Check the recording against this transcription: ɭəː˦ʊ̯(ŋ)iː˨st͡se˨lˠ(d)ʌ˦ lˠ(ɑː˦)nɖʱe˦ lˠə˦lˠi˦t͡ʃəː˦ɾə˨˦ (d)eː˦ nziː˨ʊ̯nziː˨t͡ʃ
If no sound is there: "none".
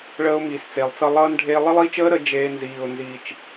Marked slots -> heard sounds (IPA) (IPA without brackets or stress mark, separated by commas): m, t͡s, ʌː˦, d͡ʒ